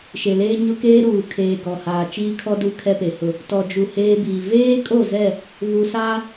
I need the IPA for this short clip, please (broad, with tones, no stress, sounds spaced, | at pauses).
ʃ e˨ l eː˦ ɲ ʊ˦ k eː˦ ɾ uː˨ kʰ eː˨ ɡ ɔ˨ h aː˨ t͡ʃ iː˦ kʰ ɔ˦ d u˦ kʰ ɛ˦ p e˨ h ʊ˦˨ | t ɔ˨ d͡ʒ u˨ h eː˦ b iː˨ v eː˦ kʼ o˦˨ z ɛ˦˨ | β u˨ s aː˦